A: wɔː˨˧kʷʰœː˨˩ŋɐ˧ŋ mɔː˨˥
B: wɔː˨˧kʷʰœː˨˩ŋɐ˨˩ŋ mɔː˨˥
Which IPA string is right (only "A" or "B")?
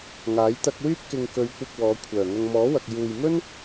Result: A